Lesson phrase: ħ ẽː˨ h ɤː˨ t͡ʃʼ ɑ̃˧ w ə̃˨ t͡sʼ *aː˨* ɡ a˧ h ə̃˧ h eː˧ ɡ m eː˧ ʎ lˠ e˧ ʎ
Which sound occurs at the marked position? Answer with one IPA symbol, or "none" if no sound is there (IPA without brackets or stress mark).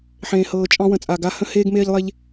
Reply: aː˨